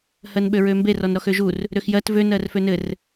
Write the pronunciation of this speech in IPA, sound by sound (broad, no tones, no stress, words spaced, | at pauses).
hɜnɓøɹømbe rɔnɾɔxøʒur | ɾøxjɜt vø nɜrfønɘr